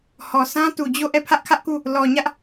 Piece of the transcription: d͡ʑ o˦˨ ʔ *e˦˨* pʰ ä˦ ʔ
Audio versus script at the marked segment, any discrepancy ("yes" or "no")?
yes